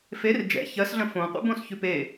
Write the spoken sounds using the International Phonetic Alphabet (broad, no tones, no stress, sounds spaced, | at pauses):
f e r d͡ʒ ɛ̰ ç ɜ s ɮ ə̃ f õ qʷ ɛ̰ b õ s ç ʉ p e